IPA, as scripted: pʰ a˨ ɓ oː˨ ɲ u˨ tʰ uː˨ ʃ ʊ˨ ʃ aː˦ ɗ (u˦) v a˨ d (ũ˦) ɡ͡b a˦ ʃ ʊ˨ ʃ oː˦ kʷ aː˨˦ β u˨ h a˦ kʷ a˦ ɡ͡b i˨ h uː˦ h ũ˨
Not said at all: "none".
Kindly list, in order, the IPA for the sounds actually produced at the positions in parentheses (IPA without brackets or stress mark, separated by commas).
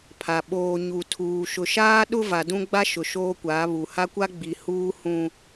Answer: ʊ˦, ũ˦